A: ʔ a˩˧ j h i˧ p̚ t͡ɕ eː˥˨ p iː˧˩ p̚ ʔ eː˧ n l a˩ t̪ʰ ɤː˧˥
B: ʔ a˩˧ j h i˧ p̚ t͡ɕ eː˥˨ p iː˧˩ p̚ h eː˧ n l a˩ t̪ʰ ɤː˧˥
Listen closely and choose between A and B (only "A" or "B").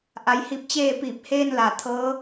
B